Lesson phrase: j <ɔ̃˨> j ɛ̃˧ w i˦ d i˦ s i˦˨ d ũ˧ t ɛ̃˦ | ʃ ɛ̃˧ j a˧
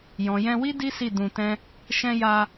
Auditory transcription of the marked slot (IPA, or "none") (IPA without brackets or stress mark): ɔ̃˨